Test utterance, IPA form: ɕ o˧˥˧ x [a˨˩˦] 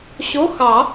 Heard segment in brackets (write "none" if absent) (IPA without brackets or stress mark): ɑ˨˩˦